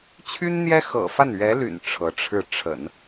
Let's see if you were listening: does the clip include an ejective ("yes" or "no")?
no